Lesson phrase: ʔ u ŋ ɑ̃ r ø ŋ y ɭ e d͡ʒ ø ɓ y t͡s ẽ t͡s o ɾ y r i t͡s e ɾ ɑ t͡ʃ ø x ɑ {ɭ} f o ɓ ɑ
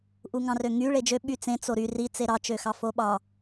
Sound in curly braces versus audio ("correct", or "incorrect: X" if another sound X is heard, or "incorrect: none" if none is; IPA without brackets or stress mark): incorrect: none